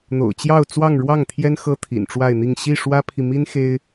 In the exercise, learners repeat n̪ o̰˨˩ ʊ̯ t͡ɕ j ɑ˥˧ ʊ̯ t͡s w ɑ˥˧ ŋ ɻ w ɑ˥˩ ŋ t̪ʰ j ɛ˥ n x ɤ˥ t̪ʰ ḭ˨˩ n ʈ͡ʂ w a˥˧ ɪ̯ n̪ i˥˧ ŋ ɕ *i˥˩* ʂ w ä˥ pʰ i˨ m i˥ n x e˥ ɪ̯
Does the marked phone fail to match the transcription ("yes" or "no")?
no